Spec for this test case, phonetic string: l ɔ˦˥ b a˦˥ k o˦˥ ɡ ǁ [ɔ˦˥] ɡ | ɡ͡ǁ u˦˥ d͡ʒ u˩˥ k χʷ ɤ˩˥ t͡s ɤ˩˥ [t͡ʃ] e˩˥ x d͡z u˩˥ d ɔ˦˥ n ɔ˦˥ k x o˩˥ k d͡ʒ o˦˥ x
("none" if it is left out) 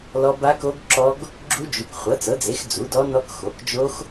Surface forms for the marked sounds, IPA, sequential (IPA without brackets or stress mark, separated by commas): ɔ˦˥, d͡z